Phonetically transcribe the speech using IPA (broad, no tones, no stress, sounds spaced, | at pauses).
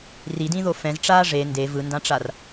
r i d ĩ ð o f ɛ̃ z ʈ͡ʂ aː ʐ e n d e v ɯ n d ã ʈ͡ʂ a r